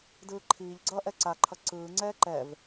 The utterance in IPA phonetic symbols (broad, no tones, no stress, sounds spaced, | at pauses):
d ɯː ǃʰ iː ʎ ɡ͡ǀ ʌː ʔ ɛ ǀ a ǃʰ ʌ ǀ ɯː ŋ͡ǀ ɛː ǃ ɛ v